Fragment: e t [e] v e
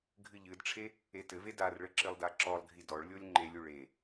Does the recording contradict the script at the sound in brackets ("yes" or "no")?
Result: yes